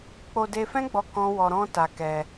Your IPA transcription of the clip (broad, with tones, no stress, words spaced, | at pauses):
k͡po˧de˧fɛ̃˦ɡ͡bɔ˧ kɔ̃˦ wɔ˧ɾɔ̃˦ta˧ kɛ˧